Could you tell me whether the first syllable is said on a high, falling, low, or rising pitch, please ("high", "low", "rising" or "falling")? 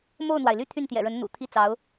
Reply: falling